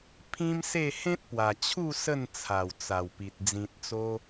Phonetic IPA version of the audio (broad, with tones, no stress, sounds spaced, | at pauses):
pʰ ĩ˦ m s e˥˧ h ẽ˦ t̚ p w a˨˩ t͡ɕʰ u˥˧ s ə˥˧ n t͡sʰ a˨˩ w t͡s a˨˩ w p i˨ t̚ d͡z ĩ˨ t̚ t͡s o˧